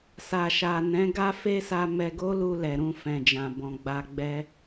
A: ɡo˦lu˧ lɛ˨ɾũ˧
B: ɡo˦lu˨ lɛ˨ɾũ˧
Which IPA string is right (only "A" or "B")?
A